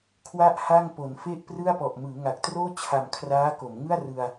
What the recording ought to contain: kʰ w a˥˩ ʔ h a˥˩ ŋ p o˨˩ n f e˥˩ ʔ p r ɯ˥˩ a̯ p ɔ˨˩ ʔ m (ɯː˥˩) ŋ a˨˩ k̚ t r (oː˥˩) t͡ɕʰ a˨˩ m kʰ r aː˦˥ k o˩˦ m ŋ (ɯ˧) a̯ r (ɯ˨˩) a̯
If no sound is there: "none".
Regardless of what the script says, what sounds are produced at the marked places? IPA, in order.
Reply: ɯː˩˦, oː˥˩, ɯ˥˩, ɯ˧

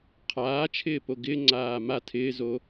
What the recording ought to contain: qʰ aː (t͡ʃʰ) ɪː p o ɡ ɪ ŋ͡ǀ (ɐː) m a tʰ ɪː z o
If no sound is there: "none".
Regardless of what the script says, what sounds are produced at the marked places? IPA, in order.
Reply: t͡ʃʰ, aː

